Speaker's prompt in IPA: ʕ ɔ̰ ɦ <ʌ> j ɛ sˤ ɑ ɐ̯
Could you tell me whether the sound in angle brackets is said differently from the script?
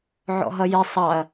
no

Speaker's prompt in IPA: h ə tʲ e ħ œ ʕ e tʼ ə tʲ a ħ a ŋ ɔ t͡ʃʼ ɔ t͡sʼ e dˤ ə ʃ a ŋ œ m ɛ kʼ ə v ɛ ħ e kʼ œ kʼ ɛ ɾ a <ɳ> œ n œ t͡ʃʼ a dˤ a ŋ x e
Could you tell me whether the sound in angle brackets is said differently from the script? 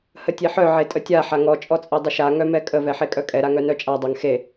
yes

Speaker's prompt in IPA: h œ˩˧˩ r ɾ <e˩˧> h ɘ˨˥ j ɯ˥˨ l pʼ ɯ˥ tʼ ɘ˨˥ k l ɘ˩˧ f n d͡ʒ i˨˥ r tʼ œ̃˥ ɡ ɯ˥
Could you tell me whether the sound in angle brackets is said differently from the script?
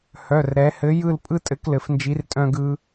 yes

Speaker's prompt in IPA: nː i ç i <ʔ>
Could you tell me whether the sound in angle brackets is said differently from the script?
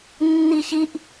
no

